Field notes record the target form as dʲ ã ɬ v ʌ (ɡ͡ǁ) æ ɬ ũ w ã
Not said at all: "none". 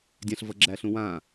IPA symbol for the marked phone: ɡ͡ǁ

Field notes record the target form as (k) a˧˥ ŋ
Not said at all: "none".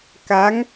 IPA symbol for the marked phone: k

